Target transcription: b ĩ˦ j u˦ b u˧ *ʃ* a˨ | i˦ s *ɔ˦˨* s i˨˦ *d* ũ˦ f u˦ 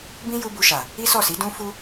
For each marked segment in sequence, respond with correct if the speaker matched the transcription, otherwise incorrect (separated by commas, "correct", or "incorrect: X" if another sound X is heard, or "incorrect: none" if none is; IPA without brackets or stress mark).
correct, correct, correct